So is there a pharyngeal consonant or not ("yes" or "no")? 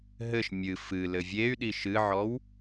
yes